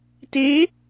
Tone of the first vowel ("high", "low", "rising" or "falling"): rising